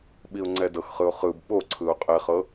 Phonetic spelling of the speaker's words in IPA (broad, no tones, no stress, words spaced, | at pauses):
ɓiʊ̯ŋ͡ǀɛdɤxχɯʊ̯ χɯb ɓoǀʰɯʊ̯ qʼɛχɤ